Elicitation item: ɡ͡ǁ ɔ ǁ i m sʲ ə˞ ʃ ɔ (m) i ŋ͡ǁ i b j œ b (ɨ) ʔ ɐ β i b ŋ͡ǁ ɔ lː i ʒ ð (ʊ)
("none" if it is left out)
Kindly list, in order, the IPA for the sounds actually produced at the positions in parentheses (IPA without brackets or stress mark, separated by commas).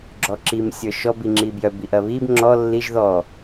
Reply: b, i, ɔ